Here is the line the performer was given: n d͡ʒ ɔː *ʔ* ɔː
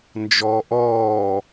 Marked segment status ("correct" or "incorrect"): correct